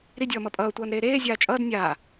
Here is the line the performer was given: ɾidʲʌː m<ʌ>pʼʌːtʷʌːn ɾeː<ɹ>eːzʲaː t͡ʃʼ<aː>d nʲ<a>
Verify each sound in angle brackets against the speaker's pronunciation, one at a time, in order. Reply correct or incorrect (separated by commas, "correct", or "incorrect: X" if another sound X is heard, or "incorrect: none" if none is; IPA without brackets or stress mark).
correct, incorrect: ɾ, incorrect: ʌː, incorrect: aː